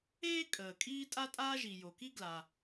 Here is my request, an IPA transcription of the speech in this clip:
eː˥ kʼ əː˩ kʼ iː˥ tʼ a˥ tʼ aː˥ ʒ i˩ j o˩ k i˥ ɡ l a˩

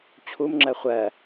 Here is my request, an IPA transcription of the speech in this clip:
t͡ɕʰ u m ŋ͡ǁ ɜ χʷ ɜ

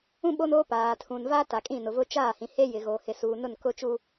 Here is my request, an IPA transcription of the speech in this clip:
ũ˦ ɓ o˦ n oː˦ p aː˨ tʰ ũ˨ n v a˦ t a˨ kʼ ĩ˦˨ n ʊ˨ v ʊ˦ t͡ʃ aː˦˨ h ĩ˨ h e˦ j ɪ˨ ɣ oː˨ h ɪ˨ s uː˨ n ʊ˦˨ n k ʊ˦ t͡ʃ u˦

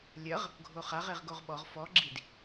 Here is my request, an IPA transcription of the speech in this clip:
lʲ ɐ ʁ | ɡʱ o χ a ʁ e ʁ ɡ o ʁ ɓ ɔ ʁ f ɔ ɡ͡ǁ i d

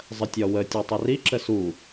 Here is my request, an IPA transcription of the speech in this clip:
zˤ ə tʲ ɒ w ə tʲ ɒ tˤ ɛ r i ǁ ə s u

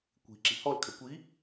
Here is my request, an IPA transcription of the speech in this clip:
kʷ i̤ ǁ i̤ h ɔ l kʰ ɛ kʷ i

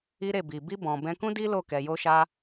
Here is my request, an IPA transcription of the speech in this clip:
i˦ ɾ e˦˨ b i˨ b i˧ b ɔ̃˨ b ɛ̃˧ k ũ˦ d i˦ l o˦˨ k ɛ˧ j o˦ ʃ a˦

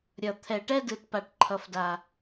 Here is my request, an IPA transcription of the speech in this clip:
ɾʲ ʌ˨ t̪ʰ ɛ˨ ʈ ɛ˦ d ɯ˨ t p a˨ ʈ ǃʰ ʌ˨ f d a˨

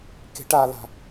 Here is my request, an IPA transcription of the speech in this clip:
k e̤ ʈ a l a̤

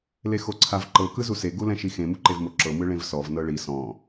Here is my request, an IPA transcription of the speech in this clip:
l e x o ǀʰ a v ǃ ɤ k ɯ z u s e ɡ u l ɛ̃ ʃ i x ẽ m u ǃ e v m o ǁ ɤ m ɯ ɭ ẽ v s ɔ v n ɤ ɭ i s ɔ̃

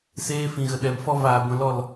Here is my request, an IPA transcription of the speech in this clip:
s eː˧ f ĩ˨ ɣ ə˨ ɗ ɛ˨ m f ɔ˧ v aː˨ ɡʷ ɛ̃˧ l ɔ˦˨ l

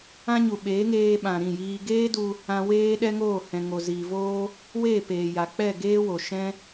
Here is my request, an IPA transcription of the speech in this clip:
ã˦ ɲ u˨ ɓ eː˨˦ ŋ eː˧ ɓ ã˨ ɾ ĩ˦˨ j iː˧ ɡ eː˦ d u˧ | ã˧ w eː˦ ɗ ɛ˦ ŋ oː˦˨ h ɛ̃˨ ŋ o˨ z iː˨ v oː˦ | w eː˦˨ p eː˨ j a˨ k͡p ɛ˦˨ ɡ eː˦ w o˨ ʃ ɛ̃˦

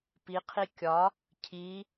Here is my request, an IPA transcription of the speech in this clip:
p i qʰ i kʲ ɒ | cʰ i

